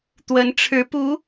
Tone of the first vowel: rising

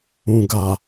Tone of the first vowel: low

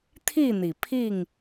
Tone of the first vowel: falling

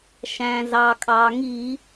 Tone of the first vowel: low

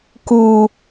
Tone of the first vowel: low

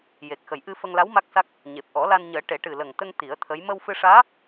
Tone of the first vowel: low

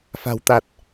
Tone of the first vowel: low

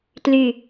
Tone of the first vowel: falling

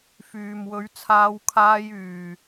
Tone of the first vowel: low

